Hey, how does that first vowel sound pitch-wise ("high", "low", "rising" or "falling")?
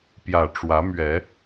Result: low